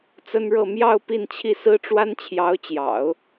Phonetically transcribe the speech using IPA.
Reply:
t͡s ə˥ n ɻ ɤ˥˧ m j ɑ˥˧ ʊ̯ p i˥˧ n t͡ɕʰ i˥˩ s ɹ̩˥ ʈ͡ʂ w a˥ n t͡ɕʰ j ɑ˧˥ ʊ̯ t͡ɕ j ɑ̰˨˩˦ ʊ̯

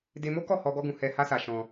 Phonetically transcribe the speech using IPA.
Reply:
d e˧ m o˦ k ɔ˦˨ h ɔ˧ ɡ ɔ˦ ɡ ũ˧ h ɛ˧ h a˦ s a˧ ʃ ɔ̃˧

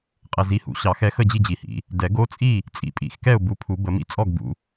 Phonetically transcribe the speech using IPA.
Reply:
qʼ ɛ˨ z i˨˦ h ṵ˨˩˦ ɕ ɑ˨˩˦ x ɛ˨˦ x ə˥˨ d͡ʑ i˥˨ d͡ʑ i˨ h ḭ˨˩˦ | d ɛ˨˩˦ ɡ o˦ t͡sʼ i˥˨ | t͡sʼ ḭ˨ pʼ ḭ˨˩˦ x k ɛ˥˨ ʊ̯ b u˨˦ pʰ u˨˩˦ b ə˨˩˦ m ḭ˦ t͡sʼ ɔ˥˨ ɡ b ṵ˨˦

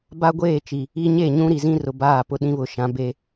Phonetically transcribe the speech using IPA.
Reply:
b a˦ ɡʷ eː˦˨ t͡ʃ i˨ | i˦ ɲ e˦˨ ɲ ũ˦ ɾ i˨ z ĩ˦ r ʊ˨ b aː˦˨ p ʊ˦ ɗ ĩ˦ β ʊ˨ ʃ ã˨˦ b e˦

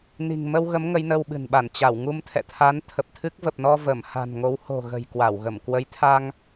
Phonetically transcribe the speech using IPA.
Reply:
n i̤˨˩ ŋ m ə˧ w ɣ ə˨˦ m ŋ ə˨˦ j n ə˧ w ɓ ɨ̤˨˩ n ɓ a˧˩ n t͡ɕ a˧˩ w ŋ u˧ m t̪ʰ ɛ̰˧˨ t̪ʰ a˨˦ n t̪ʰ ə˨˩ p̚ t̪ʰ ɨ˦˥ k̚ v ə˨˩ p̚ n ɔ˧ v ə˧˩ m h a̤˨˩ n ŋ o˨˦ w h o̤˨˩ ɣ ə̤˨˩ j k w a˧˩ w ɣ ə˧˩ m k w ə˨˦ j t̪ʰ a˧ ŋ

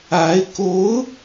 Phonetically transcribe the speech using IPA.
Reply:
a˧˥ ɪ̯ k o˧˥ ʊ̯

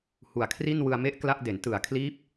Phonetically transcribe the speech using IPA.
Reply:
h u˨˩ a̯ kʰ r i˥˩ n w ɯ˧ a̯ m e˥˩ ʔ k l a˥˩ ʔ d e˩˦ n t ɯ˩˦ a̯ kʰ l iː˦˥ p̚

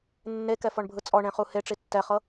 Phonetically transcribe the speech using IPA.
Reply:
nː e k ɛ f ɔ ɳ bʱ ɯ t͡sʼ ɔ ɳ ẽ χ u h e ʈ͡ʂ i tː ɛ χ ɤ

